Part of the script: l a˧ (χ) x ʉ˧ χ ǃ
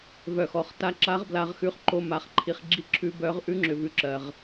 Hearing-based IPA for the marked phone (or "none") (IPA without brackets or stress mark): ʁ